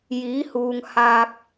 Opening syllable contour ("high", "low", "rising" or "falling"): rising